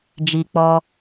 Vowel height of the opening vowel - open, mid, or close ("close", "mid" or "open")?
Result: close